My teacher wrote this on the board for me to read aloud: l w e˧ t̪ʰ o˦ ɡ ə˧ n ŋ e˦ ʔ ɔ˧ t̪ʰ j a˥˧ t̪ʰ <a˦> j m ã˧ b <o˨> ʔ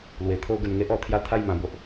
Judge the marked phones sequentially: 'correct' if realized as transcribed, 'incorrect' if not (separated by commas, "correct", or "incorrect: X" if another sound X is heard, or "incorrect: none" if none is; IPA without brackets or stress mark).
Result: incorrect: a˥˧, incorrect: o˦